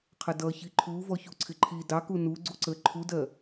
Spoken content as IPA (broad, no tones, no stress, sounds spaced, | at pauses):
qʰ ə d ʌ ç i ǃʰ u v ɔ ç u ǀʰ ɪ ǃʰ i d ɑ k u n u ɡ͡ǀ u ǀ ə ǃʰ u d ɜ